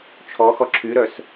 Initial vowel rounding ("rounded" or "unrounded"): rounded